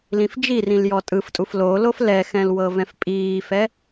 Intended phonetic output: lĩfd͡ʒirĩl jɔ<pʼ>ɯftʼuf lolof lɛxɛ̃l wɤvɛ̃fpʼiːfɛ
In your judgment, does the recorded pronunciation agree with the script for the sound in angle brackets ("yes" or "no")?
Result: no